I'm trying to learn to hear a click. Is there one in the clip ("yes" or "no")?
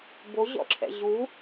yes